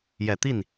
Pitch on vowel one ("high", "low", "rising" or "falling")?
low